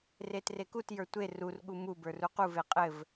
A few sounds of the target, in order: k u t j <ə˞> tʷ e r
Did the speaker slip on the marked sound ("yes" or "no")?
no